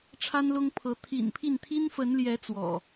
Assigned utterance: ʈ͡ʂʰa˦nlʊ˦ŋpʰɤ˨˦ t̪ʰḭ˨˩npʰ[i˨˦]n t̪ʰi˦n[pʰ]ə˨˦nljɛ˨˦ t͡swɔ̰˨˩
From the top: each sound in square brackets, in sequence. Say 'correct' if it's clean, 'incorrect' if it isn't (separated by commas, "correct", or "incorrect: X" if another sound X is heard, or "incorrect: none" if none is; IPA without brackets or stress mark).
incorrect: i˥˨, incorrect: f